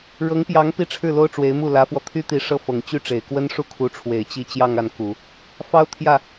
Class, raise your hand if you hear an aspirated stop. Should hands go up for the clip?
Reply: yes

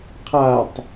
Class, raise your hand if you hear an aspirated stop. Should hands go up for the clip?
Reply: yes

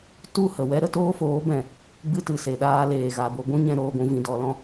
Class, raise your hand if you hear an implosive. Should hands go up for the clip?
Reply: yes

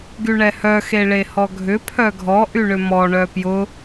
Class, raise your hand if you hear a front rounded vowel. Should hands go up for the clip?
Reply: yes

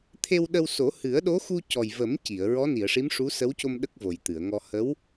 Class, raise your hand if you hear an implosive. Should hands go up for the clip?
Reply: yes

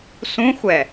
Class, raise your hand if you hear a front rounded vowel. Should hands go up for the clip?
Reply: no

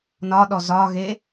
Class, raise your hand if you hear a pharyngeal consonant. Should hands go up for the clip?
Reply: no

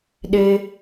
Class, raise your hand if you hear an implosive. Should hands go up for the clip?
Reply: yes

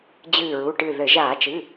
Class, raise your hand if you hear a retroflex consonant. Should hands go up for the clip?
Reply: yes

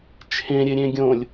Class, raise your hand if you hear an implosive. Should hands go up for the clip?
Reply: no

